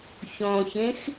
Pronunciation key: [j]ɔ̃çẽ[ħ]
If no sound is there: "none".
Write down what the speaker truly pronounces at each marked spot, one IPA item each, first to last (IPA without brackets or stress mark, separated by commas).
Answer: ç, x